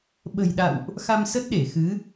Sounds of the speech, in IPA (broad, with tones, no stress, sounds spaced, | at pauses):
ɓ ə̤˨˩ j ɗ a̰˧˨ w ʔ | x a˧ m s ə˦˥ t̚ ɗ e˧˩ x ɨ˨˦